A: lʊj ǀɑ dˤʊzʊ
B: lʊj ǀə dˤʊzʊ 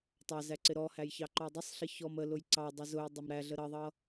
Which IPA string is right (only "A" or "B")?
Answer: A